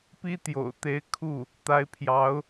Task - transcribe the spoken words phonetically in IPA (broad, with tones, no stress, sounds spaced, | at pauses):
p i˥ t̪ j o̰˨˩ ʊ̯ t̪ e˧˥ ɪ̯ kʰ u˥˩ | t̪ a˧˥ ɪ̯ pʰ j ɑ˧˥ ʊ̯